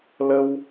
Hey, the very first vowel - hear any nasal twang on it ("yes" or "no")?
no